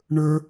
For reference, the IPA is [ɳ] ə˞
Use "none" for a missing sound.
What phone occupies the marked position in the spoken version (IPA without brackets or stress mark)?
ɳ